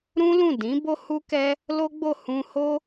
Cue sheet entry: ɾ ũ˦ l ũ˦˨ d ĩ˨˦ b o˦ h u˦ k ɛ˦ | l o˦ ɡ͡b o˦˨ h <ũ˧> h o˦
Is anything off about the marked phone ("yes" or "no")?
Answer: no